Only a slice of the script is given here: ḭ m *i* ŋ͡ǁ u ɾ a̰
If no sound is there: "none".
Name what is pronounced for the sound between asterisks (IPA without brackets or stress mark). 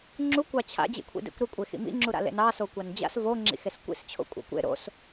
ḭ